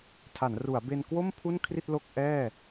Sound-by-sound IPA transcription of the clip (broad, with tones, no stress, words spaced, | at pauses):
tʰa˩˦nru˩˦a̯ be˧nkwo˥˩m pʰu˥˩nkʰri˥˩t̚ lo˥˩k̚ʔɛː˥˩